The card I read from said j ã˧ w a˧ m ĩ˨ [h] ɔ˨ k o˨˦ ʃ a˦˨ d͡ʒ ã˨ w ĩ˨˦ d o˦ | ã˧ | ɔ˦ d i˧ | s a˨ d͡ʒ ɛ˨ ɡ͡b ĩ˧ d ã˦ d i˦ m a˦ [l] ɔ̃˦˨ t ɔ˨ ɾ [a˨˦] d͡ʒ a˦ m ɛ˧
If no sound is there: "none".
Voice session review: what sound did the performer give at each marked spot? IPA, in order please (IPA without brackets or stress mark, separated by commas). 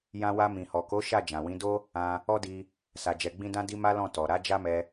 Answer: h, l, a˨˦